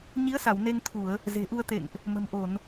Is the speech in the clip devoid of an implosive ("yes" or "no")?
yes